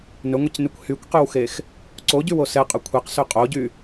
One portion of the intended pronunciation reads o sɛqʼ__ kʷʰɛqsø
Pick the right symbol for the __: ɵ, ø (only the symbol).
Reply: ɵ